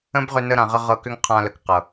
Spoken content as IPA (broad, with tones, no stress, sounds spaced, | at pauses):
ə̃˦ b ʁ ʏ˧ n ə˧ ɾ ã˨ ʁ ə˧ ʁ ɤ˧ k ʏ˦ ŋ qʰ ã˧ l ə˨ k q ɤ˨